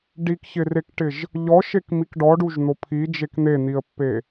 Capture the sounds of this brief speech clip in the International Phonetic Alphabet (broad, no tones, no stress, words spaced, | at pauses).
ɖikçɪrekʈɪʒ | ʎɔʃek mikɖɔɖuʒn̪o pʰid͡ʒek n̪en̪iə̯pːe